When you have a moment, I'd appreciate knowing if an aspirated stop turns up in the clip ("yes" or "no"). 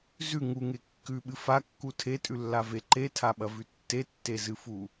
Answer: yes